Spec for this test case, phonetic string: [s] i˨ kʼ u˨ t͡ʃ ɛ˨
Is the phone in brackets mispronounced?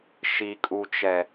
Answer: yes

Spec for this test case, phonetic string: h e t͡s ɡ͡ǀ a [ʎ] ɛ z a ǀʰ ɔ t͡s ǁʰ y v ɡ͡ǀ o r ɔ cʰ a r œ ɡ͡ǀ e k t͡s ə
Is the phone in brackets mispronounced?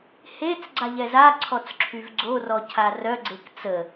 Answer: no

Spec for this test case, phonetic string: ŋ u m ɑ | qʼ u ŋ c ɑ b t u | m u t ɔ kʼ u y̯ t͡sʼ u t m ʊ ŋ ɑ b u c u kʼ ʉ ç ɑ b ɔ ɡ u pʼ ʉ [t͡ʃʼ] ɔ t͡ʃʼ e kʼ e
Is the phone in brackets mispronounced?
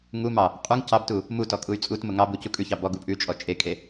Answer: no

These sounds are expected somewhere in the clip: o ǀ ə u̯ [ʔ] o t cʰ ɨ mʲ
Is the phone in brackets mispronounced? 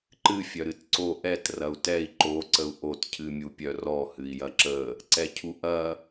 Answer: no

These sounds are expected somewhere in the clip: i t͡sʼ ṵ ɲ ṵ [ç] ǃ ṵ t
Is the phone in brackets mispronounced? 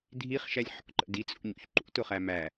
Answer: no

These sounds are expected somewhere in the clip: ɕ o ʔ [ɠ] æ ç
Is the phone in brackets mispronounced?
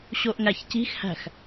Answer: yes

